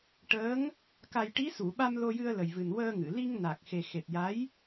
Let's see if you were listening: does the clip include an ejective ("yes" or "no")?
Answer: no